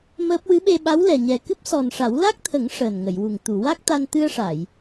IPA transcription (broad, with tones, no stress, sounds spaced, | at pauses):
m əː˦˥ p̚ w ɨ˧˥ ɓ e˧ ɓ a˧˥ w l ɛ˨˩ ɲ ɛ˨˩ k ɨ˦˥ p̚ s ɔ˨˩ n ʂ a˨˩˦ w l a˦˥ k̚ t̪ʰ ə˨˩˦ ŋ ʂ əː˨˩ n ŋ ə˨˩˨ j w u˨˩ ŋ t̪ u˨˩˨ w a˦˥ k̚ t̪ a˧ n t̪ ɨ˧ ə̯ ʂ a˨˩˨ j